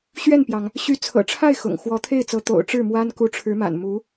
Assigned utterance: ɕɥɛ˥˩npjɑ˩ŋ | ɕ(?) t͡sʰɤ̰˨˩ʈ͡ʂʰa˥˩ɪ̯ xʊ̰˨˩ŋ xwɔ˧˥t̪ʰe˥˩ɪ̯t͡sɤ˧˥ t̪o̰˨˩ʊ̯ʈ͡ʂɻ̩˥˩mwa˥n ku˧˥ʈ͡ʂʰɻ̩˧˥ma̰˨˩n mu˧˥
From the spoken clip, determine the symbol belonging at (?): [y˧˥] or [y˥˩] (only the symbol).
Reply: y˧˥